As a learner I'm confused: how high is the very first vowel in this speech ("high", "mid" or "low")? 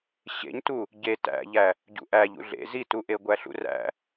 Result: mid